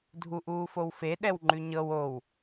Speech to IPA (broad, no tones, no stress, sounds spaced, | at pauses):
dʱ u ʔ uː f o w f e ɗ ɛ w ŋ͡ǃ ʉ ɲ ɤ w o w